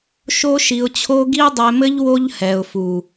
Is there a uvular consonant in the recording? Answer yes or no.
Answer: no